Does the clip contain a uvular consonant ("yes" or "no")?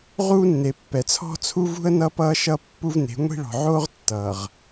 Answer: yes